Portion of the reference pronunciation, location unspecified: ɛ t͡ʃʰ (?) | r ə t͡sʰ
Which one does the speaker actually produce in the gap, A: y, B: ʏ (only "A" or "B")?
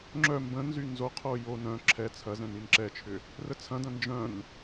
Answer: B